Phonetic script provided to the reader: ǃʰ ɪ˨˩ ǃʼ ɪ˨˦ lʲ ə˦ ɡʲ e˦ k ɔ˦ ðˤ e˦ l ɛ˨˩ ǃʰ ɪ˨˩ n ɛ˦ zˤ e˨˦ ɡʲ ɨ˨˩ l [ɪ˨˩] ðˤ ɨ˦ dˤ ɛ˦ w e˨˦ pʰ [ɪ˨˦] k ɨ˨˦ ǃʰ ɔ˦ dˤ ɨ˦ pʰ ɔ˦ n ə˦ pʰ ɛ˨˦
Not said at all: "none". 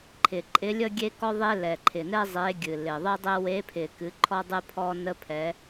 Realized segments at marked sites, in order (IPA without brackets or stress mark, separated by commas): ɪ˨˩, ɪ˨˩